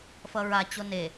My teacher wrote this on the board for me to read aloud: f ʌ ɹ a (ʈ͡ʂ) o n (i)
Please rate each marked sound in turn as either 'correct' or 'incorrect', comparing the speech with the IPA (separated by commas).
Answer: incorrect, incorrect